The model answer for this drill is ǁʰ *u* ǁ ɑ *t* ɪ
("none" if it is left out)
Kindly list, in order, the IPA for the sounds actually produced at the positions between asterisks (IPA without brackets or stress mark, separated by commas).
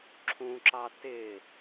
ũ, t